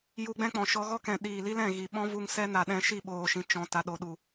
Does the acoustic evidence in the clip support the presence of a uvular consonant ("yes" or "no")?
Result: no